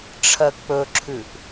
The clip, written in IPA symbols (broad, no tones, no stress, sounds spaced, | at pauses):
ʈ͡ʂʰ ɜ k͡p ɵ ǁʰ ʉ ʔ